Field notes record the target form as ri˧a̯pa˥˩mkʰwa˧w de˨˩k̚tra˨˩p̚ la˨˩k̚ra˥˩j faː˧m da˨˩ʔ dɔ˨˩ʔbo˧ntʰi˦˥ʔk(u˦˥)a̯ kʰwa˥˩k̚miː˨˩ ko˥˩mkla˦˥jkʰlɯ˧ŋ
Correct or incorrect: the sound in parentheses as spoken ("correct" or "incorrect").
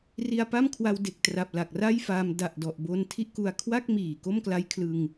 incorrect